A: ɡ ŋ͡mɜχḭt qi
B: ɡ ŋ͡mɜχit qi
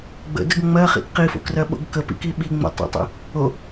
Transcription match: A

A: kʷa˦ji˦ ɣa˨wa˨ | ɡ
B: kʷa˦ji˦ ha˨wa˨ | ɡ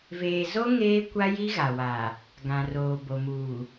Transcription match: A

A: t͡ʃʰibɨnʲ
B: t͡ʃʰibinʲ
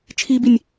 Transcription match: B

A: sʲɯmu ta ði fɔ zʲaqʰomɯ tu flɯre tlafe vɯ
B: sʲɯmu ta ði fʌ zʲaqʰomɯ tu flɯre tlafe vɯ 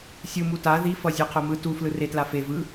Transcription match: B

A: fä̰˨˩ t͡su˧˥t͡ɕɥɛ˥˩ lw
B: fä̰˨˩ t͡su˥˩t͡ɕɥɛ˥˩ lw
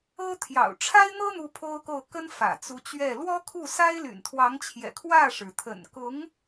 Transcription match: A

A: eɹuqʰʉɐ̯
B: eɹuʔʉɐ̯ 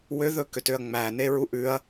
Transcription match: B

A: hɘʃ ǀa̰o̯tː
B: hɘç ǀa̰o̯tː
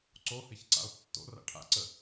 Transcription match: B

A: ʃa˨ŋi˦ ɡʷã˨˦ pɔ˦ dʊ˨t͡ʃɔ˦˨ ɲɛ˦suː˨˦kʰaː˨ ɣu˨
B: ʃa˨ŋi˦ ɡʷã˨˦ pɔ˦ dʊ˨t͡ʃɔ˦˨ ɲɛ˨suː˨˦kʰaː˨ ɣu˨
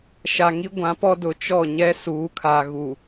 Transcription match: A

